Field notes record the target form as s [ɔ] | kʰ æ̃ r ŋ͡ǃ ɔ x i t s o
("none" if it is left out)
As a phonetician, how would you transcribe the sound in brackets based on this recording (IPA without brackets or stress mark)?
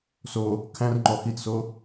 o